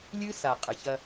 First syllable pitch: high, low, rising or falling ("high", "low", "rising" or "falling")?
high